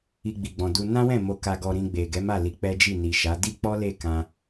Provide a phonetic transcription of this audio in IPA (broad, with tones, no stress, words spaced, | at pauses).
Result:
i˧ɡ͡bi˨ɡ͡bɔ̃˨du˧ nã˦wɛ̃˦˨ mo˧ka˧ ɡɔ˧ɾĩ˧ɡ͡be˨ ɡɛ˨˦ma˦˨li˨˦ k͡pɛ˦d͡ʒi˦˨ni˨ʃa˨˦ di˦k͡pɔ˦le˦˨ kã˧